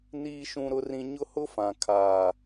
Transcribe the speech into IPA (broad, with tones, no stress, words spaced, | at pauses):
niː˦ʃũ˦ɾʊ˦rĩ˦ ɲʊ˦hʊ˦fã˨ kʰaː˨